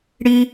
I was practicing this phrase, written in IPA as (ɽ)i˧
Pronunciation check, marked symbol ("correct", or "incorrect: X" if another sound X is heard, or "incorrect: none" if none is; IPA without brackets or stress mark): correct